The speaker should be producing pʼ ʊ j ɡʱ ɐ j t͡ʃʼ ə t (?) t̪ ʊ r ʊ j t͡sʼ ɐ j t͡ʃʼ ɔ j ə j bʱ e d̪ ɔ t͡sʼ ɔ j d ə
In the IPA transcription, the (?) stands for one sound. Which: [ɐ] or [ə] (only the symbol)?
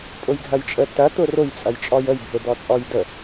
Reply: ɐ